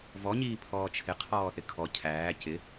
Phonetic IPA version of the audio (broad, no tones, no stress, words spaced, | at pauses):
vɔ ɲiːpʰɔːt͡ʃʰɪ qʰɔːθɪkʰɔ cʰæː cɪ